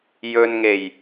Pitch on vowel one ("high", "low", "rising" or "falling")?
low